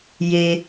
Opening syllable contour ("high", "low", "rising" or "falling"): low